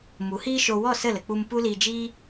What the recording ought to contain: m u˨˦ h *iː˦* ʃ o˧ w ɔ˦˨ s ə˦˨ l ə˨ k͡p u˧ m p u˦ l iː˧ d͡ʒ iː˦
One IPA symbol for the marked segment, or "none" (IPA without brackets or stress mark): iː˦